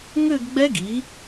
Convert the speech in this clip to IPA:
ŋʏː˥˧ɡɡ͡bɛ˦˥ ɡi˩˥

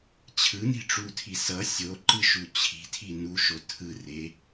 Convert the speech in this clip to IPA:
t͡ɕʰɯni̤ʈ͡ʂutʰi sʌ sʲoǃɯʃu t͡ɕʰi̤tʰi nuʃo tʰɯre

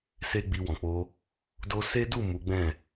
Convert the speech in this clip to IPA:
se˦ɡ͡bi˧wɔ̃˨k͡po˧ | do˧se˦du˦˨ mu˨˦ɡ͡bɛ̃˦˨

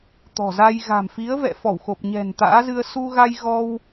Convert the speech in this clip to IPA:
t̪ɔ̤˨˩za˧j ɣa̤˨˩mfi˨˦ə̯vɛ̰˧˨fɔ˧˩w xo˨˩p̚ɲɛ̤˨˩nt̪a̰ː˧˥zɨ˧ə̯ su˧ɣa˧jɣɔ˧w

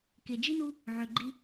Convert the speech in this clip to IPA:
ke˨d͡ʒi˥nu˦ | ʕø˨ɡ͡ǃi˦

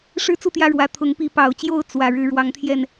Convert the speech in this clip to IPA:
ʂɻ̩˦t͡su˥˨ t̪jä˦ɻwä˨˦ t̪ʰʊ˨˦ŋpi˨˦pɑ˨˩ʊ̯t͡ɕjo˥˨ʊ̯ t͡swä˨˩ ɻɻ̩˨˦ɻwɑ˨˦ŋt̪ʰjɛ˥˨n

